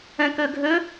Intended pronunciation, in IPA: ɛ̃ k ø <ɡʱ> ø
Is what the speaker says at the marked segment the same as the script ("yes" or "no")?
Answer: yes